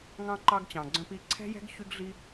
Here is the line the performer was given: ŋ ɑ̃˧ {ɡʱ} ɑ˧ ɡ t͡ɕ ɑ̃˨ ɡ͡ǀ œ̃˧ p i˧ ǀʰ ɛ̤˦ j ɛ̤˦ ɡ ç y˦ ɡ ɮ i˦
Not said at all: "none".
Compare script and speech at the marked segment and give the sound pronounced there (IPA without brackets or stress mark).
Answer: ǃ